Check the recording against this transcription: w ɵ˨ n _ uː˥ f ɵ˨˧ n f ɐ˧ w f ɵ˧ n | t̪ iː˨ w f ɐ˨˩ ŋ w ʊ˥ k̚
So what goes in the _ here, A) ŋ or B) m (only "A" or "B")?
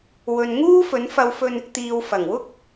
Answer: A